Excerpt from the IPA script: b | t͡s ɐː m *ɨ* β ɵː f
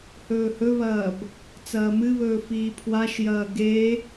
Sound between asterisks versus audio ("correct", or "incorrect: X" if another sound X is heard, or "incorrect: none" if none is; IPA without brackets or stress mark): correct